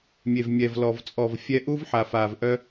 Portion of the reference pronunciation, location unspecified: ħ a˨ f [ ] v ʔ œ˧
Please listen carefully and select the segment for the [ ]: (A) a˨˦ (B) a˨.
B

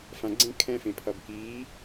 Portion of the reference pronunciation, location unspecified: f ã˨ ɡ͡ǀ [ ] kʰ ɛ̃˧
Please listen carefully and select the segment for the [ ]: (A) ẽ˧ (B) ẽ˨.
A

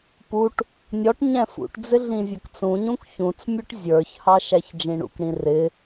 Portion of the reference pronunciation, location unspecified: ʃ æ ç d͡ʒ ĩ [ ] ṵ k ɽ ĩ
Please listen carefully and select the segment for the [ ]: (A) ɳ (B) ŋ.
A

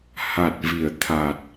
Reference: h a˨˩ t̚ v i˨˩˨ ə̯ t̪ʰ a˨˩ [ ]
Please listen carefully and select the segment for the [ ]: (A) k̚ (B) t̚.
B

